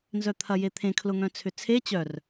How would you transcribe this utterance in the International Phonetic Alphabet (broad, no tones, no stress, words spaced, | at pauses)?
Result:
nzœt̪ʰɐjet̪ʰẽ kʰlʊŋœ̃t͡sʰʏt͡sʰe t͡ɕœr